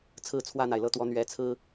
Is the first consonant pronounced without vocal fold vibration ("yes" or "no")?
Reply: yes